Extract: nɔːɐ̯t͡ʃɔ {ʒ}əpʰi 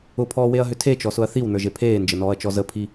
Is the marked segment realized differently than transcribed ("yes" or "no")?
yes